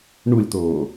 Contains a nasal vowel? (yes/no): no